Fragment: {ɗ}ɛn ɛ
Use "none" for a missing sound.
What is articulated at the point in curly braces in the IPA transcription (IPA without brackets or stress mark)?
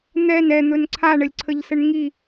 n̪